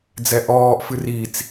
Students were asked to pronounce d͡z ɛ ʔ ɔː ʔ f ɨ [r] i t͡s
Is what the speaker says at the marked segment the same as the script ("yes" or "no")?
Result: yes